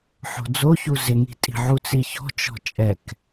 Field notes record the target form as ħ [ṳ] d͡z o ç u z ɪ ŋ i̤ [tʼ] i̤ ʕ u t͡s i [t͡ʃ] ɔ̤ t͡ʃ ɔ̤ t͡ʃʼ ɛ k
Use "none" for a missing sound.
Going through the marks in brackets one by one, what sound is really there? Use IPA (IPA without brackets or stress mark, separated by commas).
o̤, tʼ, ç